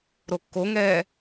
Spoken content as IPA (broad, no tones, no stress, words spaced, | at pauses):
ɾokːoŋɛː